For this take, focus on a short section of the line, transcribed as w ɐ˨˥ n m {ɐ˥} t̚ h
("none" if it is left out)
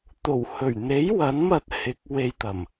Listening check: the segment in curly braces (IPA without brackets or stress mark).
ɐ˧